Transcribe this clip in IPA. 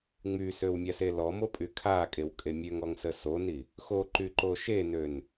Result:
ŋ͡mysøwmʲase lɔmopʼy kʰakʼewkʼe mʲøŋɔŋsə soni | xoǃyǃo ʃenøn

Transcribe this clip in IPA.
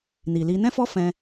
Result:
ni˨li˧ nɛ̃˦fɔ˦fɛ̃˧

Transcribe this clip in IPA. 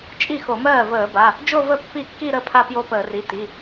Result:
t͡ʃʼi˥˩xo˧˩˧mɜː˥˩ vəː˧˩˧ba˩˧˩ | d͡ʒo˥˧və˥˩ pːi˥˩kːi˥˧ɾə˥˩ pʰa˥˧pjo˥˧pəː˧˩˧ri˩˧˩ ti˩˧˩

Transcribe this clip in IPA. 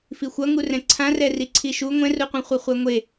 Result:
fixʷʌŋu rɛ̃ǀʰã rɛriǀʰiʃu ŋʷɛ̃ruqʷɛ̃ χʷʌχʷɛŋʷe

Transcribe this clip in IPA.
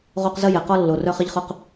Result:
ʁo˦qzə˦jɛ˨ qɔ˦lːo˨ rœ˦χə˦ʎχʊ˦q

